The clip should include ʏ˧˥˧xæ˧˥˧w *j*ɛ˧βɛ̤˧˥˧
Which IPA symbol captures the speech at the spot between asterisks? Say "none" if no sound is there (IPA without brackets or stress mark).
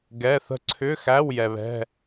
j